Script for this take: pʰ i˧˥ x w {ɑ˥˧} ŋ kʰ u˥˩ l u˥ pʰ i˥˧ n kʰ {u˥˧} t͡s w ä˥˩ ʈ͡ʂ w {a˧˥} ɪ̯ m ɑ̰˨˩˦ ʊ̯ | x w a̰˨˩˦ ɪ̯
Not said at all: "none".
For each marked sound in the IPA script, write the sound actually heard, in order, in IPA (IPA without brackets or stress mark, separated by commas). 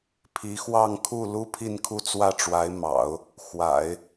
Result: ɑ˥˧, u˥˧, a˧˥